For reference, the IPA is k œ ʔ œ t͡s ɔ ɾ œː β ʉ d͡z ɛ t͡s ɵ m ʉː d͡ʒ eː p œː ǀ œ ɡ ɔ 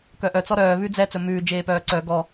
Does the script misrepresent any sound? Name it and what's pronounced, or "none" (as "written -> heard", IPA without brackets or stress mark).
none